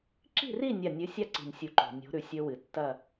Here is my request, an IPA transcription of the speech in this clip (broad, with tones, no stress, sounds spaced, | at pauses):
ǁ i̤˥˨ r i˥˨ nʲ a˧˩ nʲ ɨ˨˥ sʲ a˥˨ ǀ i̤˧˩ nʲ sʲ u˧˩ ǃ o̤˩ nʲ o̤˨˥ ɾ ʉ˨˩˦ sʲ ɵ˦˥ w ɨ˩ tː ɐ˥˨